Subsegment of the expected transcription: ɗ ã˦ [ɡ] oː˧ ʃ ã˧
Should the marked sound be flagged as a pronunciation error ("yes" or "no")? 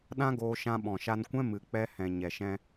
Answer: no